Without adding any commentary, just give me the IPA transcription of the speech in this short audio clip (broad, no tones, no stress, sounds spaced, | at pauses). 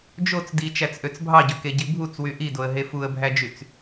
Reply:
d͡ʒ o t͡s d i t͡ʃ æ t͡s ʔ ø t͡s bʱ ɑ ɟ ø k e ɟ i bʱ u t͡s w y ʔ i d o ə̯ ɦ e f u ə̯ bʱ æ d͡ʒ y t͡s